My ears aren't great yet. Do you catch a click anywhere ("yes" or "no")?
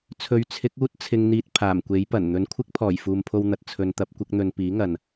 no